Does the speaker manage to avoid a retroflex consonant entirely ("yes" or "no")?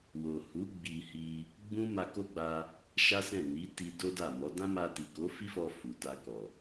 yes